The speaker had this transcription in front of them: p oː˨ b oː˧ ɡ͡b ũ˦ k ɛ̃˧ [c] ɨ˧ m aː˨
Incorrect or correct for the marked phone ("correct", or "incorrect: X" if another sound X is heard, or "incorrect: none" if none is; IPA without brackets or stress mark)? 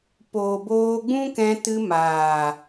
incorrect: t